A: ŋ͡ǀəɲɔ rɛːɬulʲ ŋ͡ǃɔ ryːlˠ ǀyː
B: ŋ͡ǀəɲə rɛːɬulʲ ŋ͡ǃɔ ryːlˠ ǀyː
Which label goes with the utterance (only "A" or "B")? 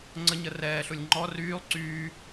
B